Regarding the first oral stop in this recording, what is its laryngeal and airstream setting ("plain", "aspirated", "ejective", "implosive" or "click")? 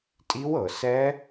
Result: ejective